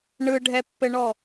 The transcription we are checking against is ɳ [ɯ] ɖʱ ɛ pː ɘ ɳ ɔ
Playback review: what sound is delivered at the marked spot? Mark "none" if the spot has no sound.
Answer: ɯ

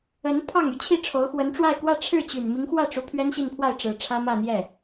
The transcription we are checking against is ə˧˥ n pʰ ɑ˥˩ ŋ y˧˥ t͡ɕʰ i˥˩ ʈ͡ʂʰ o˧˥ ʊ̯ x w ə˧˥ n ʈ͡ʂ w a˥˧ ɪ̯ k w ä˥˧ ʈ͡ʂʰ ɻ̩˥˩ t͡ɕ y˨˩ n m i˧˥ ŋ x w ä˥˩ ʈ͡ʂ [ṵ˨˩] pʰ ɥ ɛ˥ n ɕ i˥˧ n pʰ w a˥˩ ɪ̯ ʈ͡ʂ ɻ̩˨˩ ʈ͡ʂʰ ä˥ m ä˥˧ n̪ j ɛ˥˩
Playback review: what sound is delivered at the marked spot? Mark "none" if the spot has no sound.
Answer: u˧˥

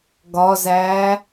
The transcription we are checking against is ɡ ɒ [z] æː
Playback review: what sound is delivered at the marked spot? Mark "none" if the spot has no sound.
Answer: z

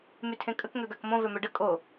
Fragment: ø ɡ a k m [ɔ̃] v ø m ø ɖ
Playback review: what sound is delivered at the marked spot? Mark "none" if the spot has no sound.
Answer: õ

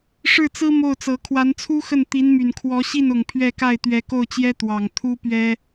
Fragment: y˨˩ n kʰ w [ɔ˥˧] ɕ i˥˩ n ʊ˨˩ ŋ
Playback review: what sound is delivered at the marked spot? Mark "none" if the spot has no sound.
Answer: ɔ˧˥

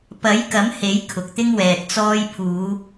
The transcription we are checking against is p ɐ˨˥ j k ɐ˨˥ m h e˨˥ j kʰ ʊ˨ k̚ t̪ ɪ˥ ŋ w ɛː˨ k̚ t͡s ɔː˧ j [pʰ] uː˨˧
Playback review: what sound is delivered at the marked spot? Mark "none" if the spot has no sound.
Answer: pʰ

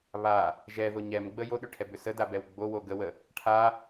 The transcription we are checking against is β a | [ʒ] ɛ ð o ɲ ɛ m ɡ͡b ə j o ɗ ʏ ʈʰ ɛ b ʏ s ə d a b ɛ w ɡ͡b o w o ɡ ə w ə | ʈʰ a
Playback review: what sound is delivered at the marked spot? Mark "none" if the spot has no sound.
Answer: ʒ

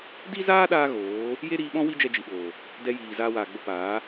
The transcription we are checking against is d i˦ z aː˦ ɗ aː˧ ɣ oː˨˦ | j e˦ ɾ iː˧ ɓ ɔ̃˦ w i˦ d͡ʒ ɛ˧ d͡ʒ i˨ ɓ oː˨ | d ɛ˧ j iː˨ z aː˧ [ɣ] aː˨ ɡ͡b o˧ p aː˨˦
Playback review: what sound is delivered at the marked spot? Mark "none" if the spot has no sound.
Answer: w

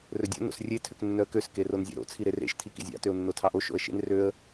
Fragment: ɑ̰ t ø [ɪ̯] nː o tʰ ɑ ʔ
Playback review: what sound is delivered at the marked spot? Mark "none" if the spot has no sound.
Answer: ʊ̯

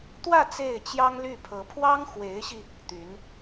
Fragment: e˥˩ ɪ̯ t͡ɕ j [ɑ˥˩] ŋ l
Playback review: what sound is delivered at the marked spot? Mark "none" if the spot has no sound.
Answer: ɑ˥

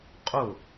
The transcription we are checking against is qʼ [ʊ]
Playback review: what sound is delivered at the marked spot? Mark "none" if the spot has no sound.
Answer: ʊ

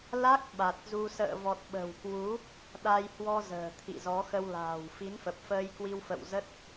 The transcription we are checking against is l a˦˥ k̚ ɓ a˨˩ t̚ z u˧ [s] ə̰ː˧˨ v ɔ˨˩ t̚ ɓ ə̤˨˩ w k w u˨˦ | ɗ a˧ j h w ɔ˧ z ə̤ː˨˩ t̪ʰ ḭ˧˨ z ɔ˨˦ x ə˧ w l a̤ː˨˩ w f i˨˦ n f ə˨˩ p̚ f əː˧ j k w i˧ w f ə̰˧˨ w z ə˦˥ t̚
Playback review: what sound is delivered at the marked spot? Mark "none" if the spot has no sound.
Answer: s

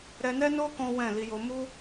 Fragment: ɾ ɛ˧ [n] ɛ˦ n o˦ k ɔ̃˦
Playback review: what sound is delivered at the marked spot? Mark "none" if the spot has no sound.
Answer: n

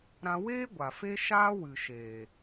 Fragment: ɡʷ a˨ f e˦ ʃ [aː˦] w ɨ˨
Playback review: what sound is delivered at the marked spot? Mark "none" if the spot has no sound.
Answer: aː˦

